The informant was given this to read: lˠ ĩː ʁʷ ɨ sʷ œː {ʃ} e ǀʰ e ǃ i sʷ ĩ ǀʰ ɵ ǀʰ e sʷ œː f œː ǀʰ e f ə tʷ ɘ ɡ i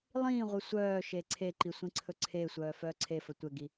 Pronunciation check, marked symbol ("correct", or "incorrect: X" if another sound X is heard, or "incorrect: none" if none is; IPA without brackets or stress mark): correct